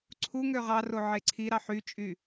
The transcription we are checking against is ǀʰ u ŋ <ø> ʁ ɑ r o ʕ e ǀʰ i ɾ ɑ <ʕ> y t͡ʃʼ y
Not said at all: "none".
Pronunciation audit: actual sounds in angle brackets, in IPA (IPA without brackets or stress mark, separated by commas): ø, ħ